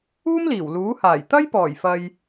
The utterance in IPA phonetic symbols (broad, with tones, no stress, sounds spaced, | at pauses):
uː˥ m l iː˨˩ w l uː˨˥ h aː˨˩ j t̪ ɐ˥ j p ɔː˨˩ j f ɐ˨ j